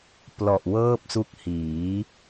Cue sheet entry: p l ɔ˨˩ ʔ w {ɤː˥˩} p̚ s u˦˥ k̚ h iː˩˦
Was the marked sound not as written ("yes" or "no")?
no